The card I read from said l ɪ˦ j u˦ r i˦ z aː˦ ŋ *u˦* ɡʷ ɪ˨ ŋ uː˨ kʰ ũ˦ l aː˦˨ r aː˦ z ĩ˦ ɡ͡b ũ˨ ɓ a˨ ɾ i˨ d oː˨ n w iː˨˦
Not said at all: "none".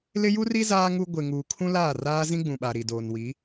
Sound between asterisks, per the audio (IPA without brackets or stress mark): u˦